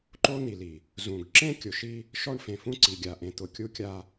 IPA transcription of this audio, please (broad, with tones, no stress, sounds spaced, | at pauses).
ǃ o˦ n̪ i˨ l i˨ | z ũ˨ ɡ ǁ ẽ˦ kʲ ʊ˨ ʃ i˦ | ʃ ɔ˦ ɳ f ẽ˨ f ũ˦ ǀ i˨ ɡʲ a˨ ʔ ẽ˨ t̪ ʊ˨ kʲ u˦ kʲ a˦